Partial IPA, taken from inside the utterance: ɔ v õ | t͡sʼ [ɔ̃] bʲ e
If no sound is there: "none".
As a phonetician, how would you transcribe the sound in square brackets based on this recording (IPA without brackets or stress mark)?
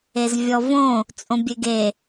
õ